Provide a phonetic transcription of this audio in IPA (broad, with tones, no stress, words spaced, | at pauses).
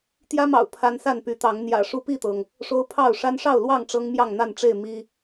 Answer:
t̪jä˦mɑ̰˨˩ʊ̯ pʰa˦n sa˥˨npy˨˦ t̪ɑ˨˦ŋ n̪jä̰˨˩ʂu˦pi˥˨t̪ɤ˩ŋ | ʂo˦ʊ̯pʰɑ˥˨ʊ̯ ʂa˦nʂɑ˥˨ʊ̯lwɑ˥˨ŋ ʈ͡ʂɤ˦ŋmjɑ˥˨ŋn̪a˥˨nʈ͡ʂe˥˨ɪ̯ mi˦